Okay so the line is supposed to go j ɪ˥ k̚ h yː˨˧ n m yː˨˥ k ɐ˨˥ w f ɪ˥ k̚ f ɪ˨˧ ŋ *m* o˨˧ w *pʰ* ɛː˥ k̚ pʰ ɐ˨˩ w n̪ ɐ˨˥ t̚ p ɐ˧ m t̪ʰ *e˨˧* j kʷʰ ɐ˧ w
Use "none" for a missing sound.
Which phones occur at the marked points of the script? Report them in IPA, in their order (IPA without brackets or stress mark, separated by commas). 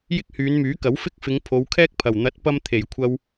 pʰ, kʰ, e˨˩